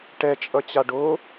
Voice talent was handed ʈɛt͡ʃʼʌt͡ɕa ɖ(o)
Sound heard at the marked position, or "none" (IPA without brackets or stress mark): o